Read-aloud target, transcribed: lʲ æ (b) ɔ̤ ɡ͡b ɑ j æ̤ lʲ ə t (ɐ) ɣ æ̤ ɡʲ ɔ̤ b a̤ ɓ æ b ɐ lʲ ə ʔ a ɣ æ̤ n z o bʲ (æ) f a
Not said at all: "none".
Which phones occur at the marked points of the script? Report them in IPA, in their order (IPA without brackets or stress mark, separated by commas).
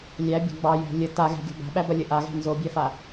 bʲ, a, æ